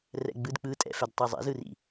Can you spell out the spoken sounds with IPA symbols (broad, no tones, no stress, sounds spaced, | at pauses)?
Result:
r ɛ̰ ɡ͡b ɯ d k͡p ɯ tʼ ɛ̰ f ɛ d tˤ i zˤ ɛ̰ z ɯ r ḭ